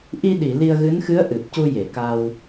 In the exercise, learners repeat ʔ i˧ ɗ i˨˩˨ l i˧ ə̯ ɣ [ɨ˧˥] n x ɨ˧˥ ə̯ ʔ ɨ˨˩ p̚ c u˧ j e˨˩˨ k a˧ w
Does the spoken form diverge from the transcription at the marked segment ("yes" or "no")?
no